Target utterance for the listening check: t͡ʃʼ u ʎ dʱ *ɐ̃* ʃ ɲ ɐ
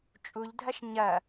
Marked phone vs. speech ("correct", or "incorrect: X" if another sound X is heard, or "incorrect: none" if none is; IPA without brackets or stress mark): incorrect: ɐ